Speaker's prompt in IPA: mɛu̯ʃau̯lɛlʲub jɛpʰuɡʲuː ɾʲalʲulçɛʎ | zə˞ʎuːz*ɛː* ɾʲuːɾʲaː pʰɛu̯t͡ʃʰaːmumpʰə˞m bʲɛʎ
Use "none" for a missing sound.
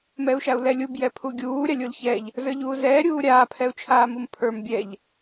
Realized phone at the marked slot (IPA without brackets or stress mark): ɛː